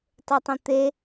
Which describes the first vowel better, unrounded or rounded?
rounded